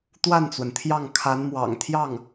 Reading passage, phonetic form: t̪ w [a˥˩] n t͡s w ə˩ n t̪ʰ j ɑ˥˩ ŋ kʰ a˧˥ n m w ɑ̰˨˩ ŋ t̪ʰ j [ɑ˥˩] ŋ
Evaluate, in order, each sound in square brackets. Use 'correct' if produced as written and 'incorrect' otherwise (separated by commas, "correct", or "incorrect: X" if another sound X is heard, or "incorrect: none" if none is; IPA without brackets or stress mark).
correct, correct